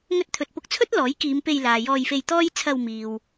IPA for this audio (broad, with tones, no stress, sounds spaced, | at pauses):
ŋ ɵ˧ t̚ t̪ʰ ɵ˨ t̚ p ʊ˧ k̚ t͡sʰ ɵ˥ t̚ l ɔː˨˥ j k iː˨˧ m p e˧ j l aː˨ j ɔː˧ j f e˧ j t̪ ɔː˥ j t͡sʰ ɐ˧ w m iː˨ w